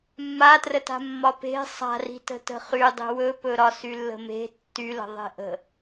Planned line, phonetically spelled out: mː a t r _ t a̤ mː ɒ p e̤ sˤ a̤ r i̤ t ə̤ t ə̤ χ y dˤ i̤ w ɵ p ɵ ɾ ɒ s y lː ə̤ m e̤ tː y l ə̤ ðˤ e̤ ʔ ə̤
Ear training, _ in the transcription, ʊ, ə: ə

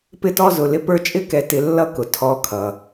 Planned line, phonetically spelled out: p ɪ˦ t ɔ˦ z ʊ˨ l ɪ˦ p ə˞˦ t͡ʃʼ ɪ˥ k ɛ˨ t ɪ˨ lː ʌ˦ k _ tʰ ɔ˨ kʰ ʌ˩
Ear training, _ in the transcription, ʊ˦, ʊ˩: ʊ˩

